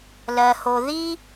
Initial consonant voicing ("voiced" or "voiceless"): voiced